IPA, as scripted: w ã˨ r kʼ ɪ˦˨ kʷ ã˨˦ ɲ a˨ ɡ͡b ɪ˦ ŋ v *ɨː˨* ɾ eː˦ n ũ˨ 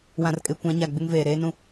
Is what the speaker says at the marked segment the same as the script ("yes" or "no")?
no